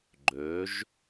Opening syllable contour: rising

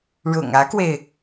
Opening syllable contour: low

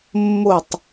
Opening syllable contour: falling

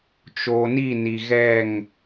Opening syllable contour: low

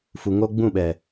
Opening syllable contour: low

